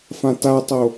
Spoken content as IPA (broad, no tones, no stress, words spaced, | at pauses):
fãtatˤo